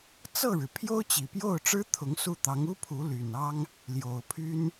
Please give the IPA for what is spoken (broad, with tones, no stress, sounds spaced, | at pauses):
t͡s ɤ˥˩ ɻ ɻ̩˩ pʰ j o˥ ʊ̯ t͡ɕ i˨˩ p j o˥˩ ʊ̯ ʈ͡ʂ ɻ̩˥ t̪ʰ ʊ˧˥ ŋ s u˥˩ t̪ ɑ˧˥ ŋ u˥ pʰ u˧˥ l y˨˩ n ɑ˥ ŋ | l j o˨˩ ʊ̯ pʰ y˥ n